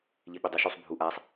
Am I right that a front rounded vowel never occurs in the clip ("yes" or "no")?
no